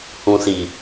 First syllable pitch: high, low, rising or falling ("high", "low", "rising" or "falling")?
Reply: low